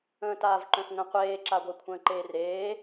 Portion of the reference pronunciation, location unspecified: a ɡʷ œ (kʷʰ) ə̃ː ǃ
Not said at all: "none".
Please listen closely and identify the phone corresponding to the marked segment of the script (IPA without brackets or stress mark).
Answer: kʷʰ